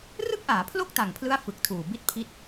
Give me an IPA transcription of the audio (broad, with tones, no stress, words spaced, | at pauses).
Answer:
rɯ˥˩k̚ʔaː˩˦pʰlo˥˩k̚ ta˨˩ŋpʰlɯ˦˥a̯ fɯ˨˩k̚tʰuː˨˩ bi˦˥t̚pʰi˦˥t̚